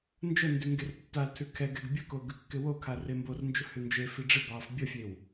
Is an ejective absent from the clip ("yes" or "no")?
yes